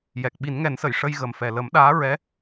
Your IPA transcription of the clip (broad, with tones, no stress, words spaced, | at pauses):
jɛ˨˩k̚ ɓi˨˩˦nŋɛ˨˩˦nsə˨˩˨j ʂə˧jɣə˨˩mfɛ˨˩ lə˨˩˦mɗaː˧˥ ɹɛ˧˥